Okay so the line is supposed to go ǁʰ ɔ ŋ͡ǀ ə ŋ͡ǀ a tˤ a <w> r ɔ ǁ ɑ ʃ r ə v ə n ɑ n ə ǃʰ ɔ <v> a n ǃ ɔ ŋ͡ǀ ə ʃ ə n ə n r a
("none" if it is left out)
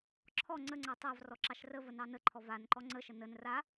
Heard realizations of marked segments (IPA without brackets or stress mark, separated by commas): v, v